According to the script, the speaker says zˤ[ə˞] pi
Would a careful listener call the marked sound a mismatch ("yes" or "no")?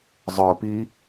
no